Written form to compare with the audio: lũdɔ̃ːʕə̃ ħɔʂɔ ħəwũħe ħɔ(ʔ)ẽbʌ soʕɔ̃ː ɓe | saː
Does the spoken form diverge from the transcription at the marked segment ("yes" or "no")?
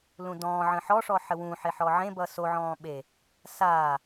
yes